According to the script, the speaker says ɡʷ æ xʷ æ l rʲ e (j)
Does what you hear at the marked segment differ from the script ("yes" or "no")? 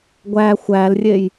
no